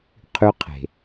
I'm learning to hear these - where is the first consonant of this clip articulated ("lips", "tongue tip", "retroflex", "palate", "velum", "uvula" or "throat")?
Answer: uvula